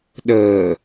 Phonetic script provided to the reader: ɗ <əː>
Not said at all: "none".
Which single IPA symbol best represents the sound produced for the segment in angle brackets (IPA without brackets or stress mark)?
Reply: əː